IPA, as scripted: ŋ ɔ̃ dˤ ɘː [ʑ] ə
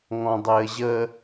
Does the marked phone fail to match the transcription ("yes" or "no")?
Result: no